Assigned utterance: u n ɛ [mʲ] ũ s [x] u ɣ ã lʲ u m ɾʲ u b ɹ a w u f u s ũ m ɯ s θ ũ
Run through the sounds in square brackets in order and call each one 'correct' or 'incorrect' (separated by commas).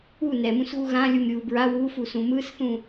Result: incorrect, incorrect